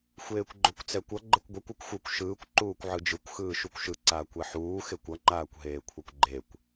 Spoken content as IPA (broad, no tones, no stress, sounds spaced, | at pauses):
xʷ eː kʷ ɡ͡ǃ o kʷ t͡s ɛ kʷ ʌ ɡ͡ǃ ɛ kʷ ɡʷ ɛ kʷ u kʷ xʷ ɯ kʷ ʃ ɯː kʷ ǃ uː kʷ ʕ ɯ d͡ʒ ɯ kʷ x ɯː ʃ u kʷ ʃ ɯ ǀ aː kʷ ɛ ħ uː x e kʷ ʌ ŋ͡ǃ aː kʷ ɦ eː kʷʰ ʌ kʷ ɡ͡ǃ e kʷ